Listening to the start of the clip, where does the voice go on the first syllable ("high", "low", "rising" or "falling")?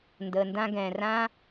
low